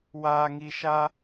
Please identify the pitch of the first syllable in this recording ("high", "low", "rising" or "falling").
low